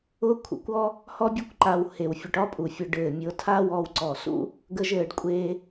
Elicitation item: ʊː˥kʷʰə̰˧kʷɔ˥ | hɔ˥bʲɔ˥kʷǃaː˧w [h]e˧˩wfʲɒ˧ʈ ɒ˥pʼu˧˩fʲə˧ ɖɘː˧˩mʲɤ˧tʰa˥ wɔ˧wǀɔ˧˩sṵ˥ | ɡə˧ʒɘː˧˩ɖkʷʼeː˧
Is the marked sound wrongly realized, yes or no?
no